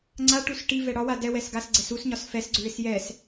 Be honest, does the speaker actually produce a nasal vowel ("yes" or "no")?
no